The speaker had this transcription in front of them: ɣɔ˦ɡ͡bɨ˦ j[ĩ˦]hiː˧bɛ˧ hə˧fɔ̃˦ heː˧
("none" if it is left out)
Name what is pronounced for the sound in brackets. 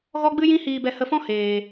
ĩ˦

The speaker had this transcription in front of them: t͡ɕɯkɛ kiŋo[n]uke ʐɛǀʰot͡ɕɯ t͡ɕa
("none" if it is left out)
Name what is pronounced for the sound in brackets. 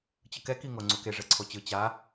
ŋ͡ǀ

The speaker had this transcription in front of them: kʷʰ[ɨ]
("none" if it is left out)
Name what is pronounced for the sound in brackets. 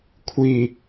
i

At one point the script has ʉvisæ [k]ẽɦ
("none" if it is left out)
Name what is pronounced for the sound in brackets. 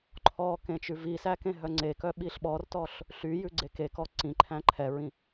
k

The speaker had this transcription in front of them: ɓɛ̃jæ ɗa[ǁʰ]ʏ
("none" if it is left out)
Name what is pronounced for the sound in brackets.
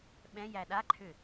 ǃʰ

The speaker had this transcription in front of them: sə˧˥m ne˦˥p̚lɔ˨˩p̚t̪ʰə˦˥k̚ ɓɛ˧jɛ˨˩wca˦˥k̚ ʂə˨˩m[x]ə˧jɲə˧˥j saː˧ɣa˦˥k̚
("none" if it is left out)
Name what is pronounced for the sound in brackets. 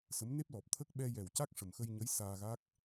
x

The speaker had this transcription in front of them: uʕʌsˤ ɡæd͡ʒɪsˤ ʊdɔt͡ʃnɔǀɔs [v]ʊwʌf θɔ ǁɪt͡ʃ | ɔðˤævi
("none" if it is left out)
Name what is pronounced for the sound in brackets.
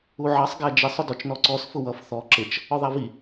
f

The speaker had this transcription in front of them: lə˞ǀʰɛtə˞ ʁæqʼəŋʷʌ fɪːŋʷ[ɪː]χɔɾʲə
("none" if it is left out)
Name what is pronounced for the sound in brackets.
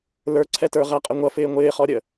ɪː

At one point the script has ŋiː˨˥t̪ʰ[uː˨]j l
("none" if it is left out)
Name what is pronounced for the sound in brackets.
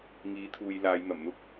uː˨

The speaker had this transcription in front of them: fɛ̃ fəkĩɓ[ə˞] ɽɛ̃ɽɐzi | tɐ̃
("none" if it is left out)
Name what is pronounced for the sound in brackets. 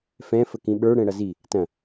ə˞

